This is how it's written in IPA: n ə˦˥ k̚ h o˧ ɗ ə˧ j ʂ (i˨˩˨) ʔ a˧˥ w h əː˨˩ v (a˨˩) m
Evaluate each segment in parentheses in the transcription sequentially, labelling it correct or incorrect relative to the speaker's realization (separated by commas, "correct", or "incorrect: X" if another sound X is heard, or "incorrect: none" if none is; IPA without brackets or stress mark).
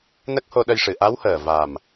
incorrect: ɨ˨˩˨, correct